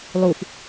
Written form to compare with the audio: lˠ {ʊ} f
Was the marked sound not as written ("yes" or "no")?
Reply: yes